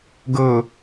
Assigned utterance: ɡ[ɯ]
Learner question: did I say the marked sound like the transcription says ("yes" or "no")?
no